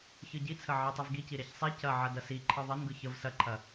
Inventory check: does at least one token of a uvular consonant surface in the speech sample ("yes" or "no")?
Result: no